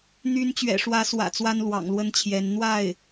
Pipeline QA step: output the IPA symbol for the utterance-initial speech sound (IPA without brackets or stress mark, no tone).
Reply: n̪